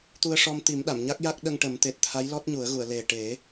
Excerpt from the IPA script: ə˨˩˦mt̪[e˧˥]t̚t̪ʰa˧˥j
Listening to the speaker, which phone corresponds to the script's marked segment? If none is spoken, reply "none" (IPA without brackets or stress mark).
e˨˩